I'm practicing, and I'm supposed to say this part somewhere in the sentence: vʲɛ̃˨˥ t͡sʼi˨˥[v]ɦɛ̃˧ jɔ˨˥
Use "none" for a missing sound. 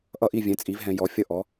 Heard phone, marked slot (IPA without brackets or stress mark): v